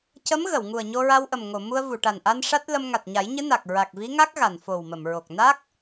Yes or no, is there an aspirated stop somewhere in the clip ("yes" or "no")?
no